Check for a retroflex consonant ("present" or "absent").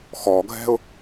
absent